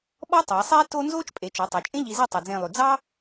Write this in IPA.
ɓɔ˥tˤæ˩˧sˤeː˥ to˥ nzoː˥t͡ʃpʼe˩˧t͡ʃɔ˩˧ tˤo˩˧t͡ʃʼẽ˥ ʎi˧ze˥˧ tˤo˧d͡zẽː˥˧lˠʉ˧ d͡zɑ˥

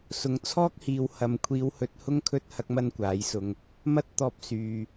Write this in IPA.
sʊ˨ŋt͡sʰɔː˥k̚hiː˨w hɐ˨mkʷʰiː˨˧whɵ˨˥t̚ hʊ˥ŋkʰɵ˥t̚ hɐ˥k̚mɐ˥nkʷaː˨˥jsʊ˧ŋ | mɐ˥t̚t̪ɔː˧p̚ syː˨

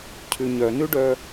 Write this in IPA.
cʰʉɲœnʉɖœ

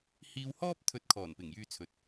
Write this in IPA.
hiː˧whɔː˥p̚ t̪ʰɵ˧t̚kʰɔː˨˩npɪ˨˩ŋ jyː˧t͡sʰɵ˨t̚

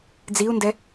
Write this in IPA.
d͡ziu̯ndɛ

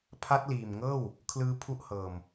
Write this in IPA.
pʰa˦˥t̚liː˨˩mŋɤː˥˩w | kʰlɯː˦˥pʰu˦˥ʔhɤː˨˩m

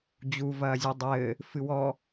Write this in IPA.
d͡ʑu vɐːzʲudˤɘː | fɨwɔ

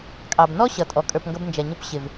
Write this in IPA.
kʼɑ˨b nɔ˦ ɕʌ˨tʼɔ˨ kʼə˞˨pŋɡʌ˧b nd͡ʒɛ˨ɲʊ˧p ɕɪ˨v

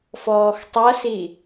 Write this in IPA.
fɔːxtˤʌsi

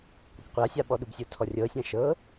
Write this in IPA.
kʷɛkqʷasʲa ɓɔɗubsʲotʰɔ rʲɤsʲã ʃɤ

